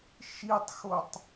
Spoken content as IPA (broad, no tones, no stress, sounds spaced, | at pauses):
ʃ i tˤ x o tˤ